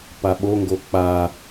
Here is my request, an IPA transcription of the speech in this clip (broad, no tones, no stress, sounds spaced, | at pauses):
p a ɓ o ŋ ɡ o k͡p a